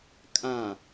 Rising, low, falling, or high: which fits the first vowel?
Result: low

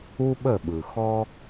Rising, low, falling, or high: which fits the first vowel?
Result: high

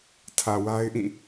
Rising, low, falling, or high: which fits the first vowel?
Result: low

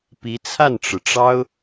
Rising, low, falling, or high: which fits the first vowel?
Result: rising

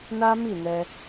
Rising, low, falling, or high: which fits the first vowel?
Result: high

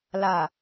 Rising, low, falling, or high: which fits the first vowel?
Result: low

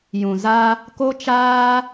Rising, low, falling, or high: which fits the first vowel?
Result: low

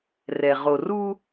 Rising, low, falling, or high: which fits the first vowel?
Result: low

